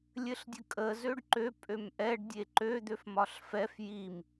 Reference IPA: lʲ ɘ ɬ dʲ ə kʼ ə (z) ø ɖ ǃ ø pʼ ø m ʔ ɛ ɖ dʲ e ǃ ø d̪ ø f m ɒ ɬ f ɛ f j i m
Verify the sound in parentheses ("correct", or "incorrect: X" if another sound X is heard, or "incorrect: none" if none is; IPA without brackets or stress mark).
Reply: correct